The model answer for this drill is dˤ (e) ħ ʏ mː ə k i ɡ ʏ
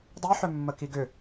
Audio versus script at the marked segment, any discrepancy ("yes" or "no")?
yes